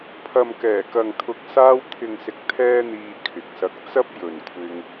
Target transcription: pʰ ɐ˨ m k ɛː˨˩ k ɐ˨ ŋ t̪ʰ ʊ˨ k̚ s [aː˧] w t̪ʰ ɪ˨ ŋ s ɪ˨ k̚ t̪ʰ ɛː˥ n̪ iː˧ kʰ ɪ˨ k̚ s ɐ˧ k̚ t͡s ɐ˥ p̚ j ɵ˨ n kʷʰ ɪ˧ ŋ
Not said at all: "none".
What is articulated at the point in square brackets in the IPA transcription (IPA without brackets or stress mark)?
aː˧